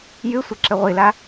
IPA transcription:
j ɨ sʷ ɘ ǁ ɘ ʁʷ i l a

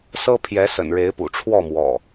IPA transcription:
s ɤ˦ pʰ j ɛ˨˦ s ə̰˨˩ n ɻ e˨˦ ɪ̯ p ṵ˨˩ ʈ͡ʂʰ w ɔ˥˨ m w ɔ̰˨˩

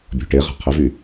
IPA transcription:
bʲ ɔ̤ ʈ e ʁ a̤ qʰ ə v y

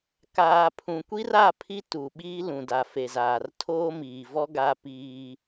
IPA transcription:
k aː˨ pʰ ũ˨ kʷ i˦ r a˦˨ pʰ i˦ t u˨ ɓ iː˦ l ũ˨ d a˨ f e˨ z aː˨ r tʰ oː˦ m iː˨ v ɔ˦ ɡ a˦ p iː˦

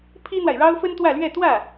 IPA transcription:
pʰ i˥ n̪ w a˨ ɪ̯ ɻ ɑ˥ ʊ̯ f ə˥ n t̪ w ä˥˧ l ɥ ɛ˥˧ t̪ w ä˥˩

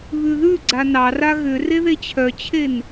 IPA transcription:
β ʉ ð ʉ ɡ͡ǀ a n ɑ r a ɣ ʏ r e ð e t͡ɕʰ œ t͡ɕʰ e n

